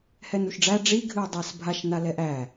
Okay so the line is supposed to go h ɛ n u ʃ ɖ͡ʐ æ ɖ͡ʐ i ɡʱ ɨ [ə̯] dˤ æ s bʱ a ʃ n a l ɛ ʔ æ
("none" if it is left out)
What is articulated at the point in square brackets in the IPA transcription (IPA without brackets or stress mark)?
ə̯